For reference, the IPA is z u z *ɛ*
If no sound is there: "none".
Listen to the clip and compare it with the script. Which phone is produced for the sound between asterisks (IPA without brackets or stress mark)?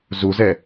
ɛ